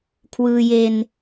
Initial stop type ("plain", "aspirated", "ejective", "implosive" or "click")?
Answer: aspirated